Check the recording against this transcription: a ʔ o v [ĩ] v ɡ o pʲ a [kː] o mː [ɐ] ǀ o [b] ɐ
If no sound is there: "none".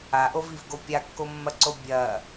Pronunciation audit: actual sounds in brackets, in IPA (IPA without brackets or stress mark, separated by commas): i, kː, ɐ, bʲ